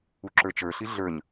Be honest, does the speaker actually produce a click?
yes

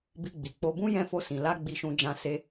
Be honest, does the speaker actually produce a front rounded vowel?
no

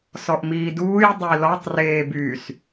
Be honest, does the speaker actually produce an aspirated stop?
no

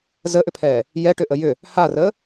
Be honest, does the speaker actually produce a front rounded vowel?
yes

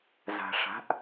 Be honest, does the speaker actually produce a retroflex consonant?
yes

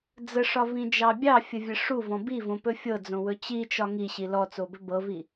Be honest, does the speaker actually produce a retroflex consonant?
yes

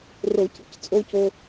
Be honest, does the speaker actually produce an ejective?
yes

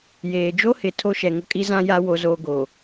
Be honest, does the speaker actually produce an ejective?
yes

